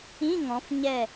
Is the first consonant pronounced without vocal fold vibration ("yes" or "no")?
no